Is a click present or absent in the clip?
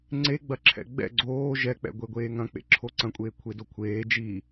present